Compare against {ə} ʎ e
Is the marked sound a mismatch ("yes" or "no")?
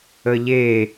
no